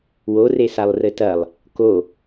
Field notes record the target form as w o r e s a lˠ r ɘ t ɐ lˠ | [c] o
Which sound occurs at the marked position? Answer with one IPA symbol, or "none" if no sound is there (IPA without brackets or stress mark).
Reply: k